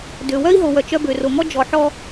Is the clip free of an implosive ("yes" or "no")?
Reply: yes